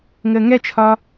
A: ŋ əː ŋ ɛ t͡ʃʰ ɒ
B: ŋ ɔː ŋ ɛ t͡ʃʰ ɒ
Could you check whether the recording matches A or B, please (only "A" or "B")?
A